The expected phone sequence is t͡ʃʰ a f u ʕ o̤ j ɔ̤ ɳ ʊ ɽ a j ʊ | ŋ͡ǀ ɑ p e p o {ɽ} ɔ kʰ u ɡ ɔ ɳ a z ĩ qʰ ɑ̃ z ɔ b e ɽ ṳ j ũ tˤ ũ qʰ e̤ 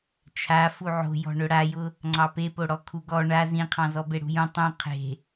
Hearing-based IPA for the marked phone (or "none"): ɽ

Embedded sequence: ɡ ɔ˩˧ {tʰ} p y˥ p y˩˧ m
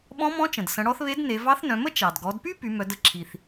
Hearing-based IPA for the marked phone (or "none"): d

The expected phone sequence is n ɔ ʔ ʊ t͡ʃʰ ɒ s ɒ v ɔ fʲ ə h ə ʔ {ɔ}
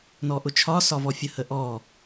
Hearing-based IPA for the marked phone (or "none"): ɔ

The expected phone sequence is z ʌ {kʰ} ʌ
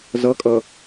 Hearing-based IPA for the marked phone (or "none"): kʼ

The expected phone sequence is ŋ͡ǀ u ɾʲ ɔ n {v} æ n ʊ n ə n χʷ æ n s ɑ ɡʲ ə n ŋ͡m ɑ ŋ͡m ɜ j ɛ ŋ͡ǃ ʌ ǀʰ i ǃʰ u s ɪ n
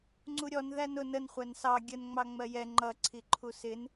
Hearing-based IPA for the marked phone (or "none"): ð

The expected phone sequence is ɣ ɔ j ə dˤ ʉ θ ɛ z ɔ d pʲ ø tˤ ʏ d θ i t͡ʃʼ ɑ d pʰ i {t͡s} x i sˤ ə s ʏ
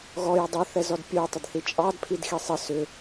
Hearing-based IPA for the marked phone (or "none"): d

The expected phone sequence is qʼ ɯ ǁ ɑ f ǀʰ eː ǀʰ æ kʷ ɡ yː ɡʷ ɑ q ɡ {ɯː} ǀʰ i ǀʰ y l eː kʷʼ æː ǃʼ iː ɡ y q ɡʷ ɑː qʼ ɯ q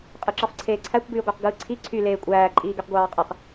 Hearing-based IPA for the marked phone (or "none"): ɯː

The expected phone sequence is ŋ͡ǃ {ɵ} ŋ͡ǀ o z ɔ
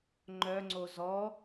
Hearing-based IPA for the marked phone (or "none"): œ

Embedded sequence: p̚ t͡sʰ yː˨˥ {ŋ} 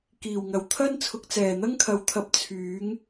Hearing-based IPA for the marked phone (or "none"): ŋ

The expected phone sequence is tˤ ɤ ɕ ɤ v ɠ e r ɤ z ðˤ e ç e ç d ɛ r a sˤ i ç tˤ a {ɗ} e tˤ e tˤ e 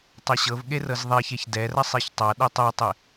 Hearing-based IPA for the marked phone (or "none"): ɗ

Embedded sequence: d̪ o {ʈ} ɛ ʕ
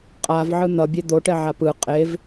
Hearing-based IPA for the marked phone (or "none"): ʈ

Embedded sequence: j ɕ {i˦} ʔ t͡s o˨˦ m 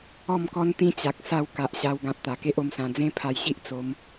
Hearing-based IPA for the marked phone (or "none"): i˦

